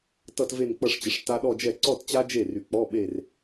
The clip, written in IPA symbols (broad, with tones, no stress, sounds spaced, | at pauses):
t ʌ˥˧ t v e˥˧ n k͡p ʌ˥˧ ʂ t͡ɕ ə˩˥ ʂ t a˦˥ ɗ ɔ˥˧ d͡ʒ ɛ˥˩ ǀ ɔ˥˧ t t͡ɕ a˦˥ d͡ʒ e˥˩ r y˩˥ k͡p ɔ˧˥˧ ɓ e˥˧ r